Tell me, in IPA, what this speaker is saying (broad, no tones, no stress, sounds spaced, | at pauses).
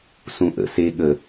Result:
s ũ ʔ ə̰ s e ɠ ə